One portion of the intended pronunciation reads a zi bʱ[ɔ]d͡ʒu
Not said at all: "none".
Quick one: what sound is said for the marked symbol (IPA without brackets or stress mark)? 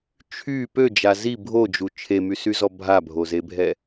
o